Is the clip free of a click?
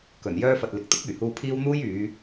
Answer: yes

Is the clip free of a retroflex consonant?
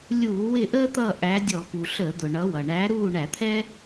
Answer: no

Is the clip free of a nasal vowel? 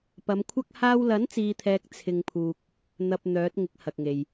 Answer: yes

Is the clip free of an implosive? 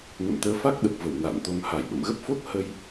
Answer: no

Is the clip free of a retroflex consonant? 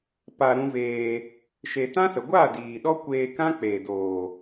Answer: yes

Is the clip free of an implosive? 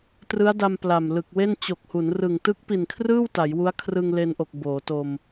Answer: yes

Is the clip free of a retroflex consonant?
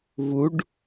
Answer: no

